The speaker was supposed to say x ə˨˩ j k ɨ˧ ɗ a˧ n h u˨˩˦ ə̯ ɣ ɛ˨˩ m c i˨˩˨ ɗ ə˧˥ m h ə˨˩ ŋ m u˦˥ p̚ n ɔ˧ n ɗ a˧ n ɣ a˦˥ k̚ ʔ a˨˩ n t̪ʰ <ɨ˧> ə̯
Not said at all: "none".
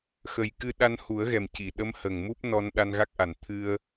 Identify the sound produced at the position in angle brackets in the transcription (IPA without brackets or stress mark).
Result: ɨ˧